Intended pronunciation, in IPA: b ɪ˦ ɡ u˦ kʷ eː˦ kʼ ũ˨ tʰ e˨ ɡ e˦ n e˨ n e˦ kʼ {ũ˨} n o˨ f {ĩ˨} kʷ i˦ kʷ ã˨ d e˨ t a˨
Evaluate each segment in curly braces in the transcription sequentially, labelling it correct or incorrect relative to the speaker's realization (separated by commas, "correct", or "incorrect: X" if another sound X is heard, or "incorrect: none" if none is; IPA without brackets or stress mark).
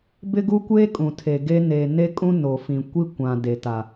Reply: incorrect: ũ˦, correct